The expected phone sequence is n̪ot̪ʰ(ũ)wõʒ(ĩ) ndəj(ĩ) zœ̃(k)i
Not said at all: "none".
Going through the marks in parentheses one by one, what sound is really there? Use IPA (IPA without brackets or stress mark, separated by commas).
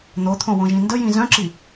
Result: õ, ĩ, ĩ, ǁ